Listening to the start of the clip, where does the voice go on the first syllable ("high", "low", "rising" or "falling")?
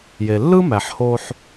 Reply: low